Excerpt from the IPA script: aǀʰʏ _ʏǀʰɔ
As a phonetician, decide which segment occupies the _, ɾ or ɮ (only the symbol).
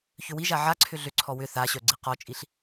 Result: ɮ